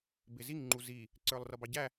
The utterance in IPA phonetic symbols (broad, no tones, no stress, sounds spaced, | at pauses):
b ɪ z i ŋ ŋ͡ǃ u z i | ǀ ə˞ lˠ r ʌ b ɑ ɟ æ